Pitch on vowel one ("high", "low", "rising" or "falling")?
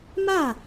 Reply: falling